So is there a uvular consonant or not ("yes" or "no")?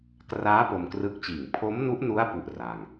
no